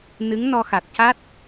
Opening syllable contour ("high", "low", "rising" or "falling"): rising